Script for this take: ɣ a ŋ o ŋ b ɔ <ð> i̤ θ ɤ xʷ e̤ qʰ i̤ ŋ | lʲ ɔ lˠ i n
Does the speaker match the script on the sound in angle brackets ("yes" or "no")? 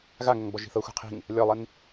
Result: no